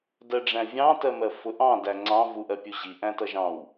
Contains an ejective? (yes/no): no